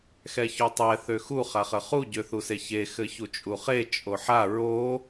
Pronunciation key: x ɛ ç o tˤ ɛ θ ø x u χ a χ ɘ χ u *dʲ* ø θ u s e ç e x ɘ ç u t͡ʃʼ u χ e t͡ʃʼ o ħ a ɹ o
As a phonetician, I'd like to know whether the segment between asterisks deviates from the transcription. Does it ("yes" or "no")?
yes